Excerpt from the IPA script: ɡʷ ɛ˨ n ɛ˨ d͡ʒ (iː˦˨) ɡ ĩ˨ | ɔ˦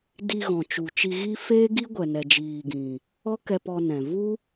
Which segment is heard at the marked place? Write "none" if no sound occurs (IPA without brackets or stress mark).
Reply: iː˨